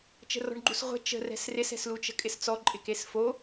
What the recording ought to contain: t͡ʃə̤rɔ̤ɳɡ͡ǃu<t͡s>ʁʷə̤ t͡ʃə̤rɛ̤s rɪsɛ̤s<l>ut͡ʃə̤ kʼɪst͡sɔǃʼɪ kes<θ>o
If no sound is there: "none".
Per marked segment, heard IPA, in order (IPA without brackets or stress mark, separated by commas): s, l, f